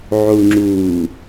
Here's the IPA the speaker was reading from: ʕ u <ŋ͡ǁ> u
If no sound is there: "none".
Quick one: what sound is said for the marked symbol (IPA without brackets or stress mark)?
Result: ŋ͡ǁ